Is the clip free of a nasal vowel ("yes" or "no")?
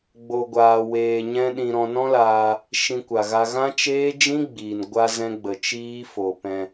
no